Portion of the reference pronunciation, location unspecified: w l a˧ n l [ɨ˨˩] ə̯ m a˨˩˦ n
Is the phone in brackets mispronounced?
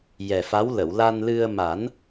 yes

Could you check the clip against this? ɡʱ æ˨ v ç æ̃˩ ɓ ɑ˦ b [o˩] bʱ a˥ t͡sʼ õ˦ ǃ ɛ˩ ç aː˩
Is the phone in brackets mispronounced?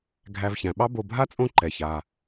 yes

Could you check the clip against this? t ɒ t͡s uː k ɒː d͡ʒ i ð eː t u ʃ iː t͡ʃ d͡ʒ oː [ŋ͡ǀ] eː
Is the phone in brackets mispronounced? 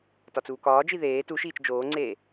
no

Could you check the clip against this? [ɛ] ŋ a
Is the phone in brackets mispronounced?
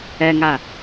no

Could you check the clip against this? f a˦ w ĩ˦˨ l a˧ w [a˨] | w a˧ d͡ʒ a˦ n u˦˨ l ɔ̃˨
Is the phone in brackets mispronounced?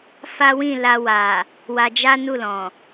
no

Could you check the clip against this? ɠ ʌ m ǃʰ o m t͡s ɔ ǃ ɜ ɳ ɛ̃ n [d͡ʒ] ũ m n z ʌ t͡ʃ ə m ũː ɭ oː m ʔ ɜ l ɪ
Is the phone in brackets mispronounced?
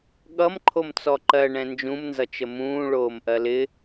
no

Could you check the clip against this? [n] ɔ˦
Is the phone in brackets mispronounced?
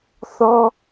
yes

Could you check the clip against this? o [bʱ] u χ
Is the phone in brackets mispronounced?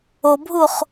no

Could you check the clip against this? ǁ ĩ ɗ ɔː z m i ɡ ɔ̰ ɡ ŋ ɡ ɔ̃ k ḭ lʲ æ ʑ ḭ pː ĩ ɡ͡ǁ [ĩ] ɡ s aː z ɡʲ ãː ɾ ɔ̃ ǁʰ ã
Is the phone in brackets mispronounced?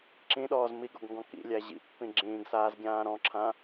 yes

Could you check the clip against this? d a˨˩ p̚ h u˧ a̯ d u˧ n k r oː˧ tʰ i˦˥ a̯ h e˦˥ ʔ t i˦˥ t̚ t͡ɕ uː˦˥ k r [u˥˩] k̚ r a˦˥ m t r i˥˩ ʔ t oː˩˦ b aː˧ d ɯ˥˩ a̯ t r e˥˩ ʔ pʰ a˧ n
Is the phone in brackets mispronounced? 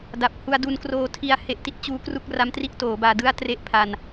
no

